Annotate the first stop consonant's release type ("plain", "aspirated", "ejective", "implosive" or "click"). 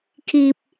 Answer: aspirated